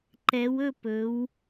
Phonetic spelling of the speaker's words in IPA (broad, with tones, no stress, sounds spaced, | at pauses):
ǃ ɛ˩˧ w ɵ˥˨ p ɵ˩˧ w